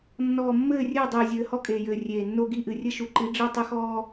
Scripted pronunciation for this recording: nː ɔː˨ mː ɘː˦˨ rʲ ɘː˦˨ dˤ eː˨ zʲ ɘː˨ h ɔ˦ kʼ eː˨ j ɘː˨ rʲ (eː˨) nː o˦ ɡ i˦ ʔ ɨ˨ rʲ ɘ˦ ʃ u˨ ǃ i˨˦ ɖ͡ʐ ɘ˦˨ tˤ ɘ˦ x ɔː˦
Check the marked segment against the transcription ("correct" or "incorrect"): correct